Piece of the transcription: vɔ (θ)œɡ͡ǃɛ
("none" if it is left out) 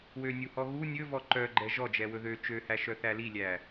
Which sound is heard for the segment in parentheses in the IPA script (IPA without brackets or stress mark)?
ǃ